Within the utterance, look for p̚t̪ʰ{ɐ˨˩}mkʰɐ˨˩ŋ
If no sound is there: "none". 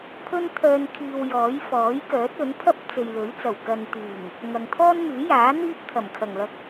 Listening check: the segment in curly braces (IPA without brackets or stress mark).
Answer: ɐ˨˩